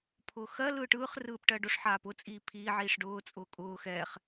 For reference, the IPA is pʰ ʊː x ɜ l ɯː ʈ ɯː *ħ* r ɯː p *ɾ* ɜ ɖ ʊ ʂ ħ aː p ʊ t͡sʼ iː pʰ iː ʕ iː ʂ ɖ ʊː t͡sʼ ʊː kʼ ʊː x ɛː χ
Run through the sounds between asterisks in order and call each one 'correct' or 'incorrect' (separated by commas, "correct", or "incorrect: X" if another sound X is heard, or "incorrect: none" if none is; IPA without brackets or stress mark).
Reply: incorrect: χ, incorrect: ʈ